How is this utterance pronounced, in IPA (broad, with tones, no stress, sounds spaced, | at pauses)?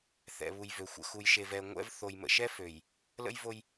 θ ɛ̰˨ β u˨ j v ø˨ xʷ ə̰˨ x u˨ j ʃ e˨ v ɛ˨ ŋʷ ɛ̰˦ v θ o˨ j m ə̰˨ ʃ ɛ˦ f ø˨ j | l ə̰˦ j v o˦ j